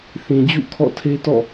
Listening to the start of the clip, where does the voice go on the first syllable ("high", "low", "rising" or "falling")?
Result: low